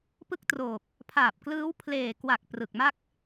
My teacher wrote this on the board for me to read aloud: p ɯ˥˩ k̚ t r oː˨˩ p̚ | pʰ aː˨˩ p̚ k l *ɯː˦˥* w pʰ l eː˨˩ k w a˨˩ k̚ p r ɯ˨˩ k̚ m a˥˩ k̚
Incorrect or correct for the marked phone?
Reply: correct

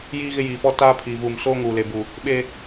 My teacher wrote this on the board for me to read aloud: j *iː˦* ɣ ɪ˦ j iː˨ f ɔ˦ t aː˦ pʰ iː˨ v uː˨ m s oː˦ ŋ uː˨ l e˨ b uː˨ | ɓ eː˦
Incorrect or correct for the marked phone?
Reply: correct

